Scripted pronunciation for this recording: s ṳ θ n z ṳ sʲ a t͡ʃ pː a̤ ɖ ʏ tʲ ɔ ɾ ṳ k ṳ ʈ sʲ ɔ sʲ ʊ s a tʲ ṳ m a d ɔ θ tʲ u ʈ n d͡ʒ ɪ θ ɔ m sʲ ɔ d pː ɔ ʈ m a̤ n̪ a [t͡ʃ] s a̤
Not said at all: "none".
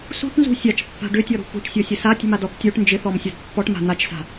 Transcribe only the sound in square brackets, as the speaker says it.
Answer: t͡ʃ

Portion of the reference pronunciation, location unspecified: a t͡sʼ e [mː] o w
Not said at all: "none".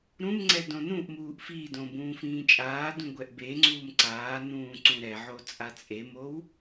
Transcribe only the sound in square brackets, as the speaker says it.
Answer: m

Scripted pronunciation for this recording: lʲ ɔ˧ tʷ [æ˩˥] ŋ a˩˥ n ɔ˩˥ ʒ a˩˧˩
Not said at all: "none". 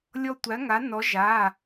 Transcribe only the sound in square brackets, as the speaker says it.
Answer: æ˩˥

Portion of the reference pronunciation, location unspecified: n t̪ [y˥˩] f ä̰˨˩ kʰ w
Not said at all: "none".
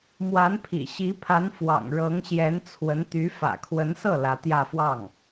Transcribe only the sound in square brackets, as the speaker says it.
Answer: y˧˥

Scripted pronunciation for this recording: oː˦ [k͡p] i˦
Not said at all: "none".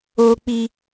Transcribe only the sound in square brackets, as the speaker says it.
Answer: k͡p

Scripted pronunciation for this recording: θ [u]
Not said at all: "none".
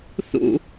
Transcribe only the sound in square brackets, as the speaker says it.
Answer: ṵ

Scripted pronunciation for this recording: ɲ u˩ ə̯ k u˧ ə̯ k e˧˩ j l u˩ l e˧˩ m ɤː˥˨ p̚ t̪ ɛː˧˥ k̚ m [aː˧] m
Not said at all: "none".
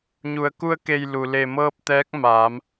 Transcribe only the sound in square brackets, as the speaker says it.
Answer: aː˩˧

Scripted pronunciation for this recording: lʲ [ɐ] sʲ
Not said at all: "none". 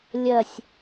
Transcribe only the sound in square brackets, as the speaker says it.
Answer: ɐ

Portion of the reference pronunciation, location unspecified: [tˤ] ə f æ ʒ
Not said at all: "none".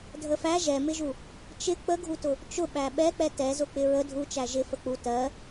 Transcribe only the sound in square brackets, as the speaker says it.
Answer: dʱ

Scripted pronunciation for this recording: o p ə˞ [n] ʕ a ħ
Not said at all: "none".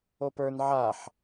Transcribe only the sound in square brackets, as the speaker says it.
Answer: n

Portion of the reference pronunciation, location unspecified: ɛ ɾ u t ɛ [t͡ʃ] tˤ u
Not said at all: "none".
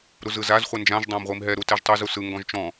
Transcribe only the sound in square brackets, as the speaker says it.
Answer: ʒ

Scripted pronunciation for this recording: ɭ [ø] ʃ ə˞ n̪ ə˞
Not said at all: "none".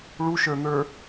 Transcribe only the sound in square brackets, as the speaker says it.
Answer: u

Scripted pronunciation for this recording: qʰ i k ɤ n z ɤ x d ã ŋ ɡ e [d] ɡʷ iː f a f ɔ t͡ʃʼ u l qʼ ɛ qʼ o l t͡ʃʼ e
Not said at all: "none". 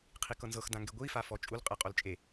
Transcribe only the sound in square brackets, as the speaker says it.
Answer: none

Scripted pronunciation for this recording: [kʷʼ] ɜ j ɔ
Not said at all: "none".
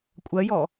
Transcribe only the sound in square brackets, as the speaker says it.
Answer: kʷʼ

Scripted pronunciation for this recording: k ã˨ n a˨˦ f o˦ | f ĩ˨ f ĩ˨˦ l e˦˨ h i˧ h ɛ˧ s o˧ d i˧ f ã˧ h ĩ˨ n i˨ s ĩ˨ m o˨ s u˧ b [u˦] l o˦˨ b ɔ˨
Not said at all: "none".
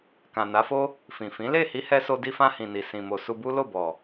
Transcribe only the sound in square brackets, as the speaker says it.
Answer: u˦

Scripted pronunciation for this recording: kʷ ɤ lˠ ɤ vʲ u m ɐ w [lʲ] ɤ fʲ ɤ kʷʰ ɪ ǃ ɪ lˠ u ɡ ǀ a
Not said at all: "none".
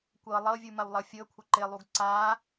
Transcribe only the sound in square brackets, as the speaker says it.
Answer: lˠ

